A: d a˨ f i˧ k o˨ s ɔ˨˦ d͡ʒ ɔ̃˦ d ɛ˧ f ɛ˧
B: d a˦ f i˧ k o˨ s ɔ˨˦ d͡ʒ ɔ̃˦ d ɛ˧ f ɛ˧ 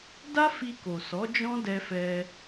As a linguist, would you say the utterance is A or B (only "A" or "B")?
B